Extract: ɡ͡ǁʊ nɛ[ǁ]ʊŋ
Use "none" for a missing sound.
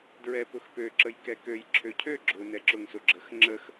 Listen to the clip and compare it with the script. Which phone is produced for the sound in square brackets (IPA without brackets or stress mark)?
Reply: ǁ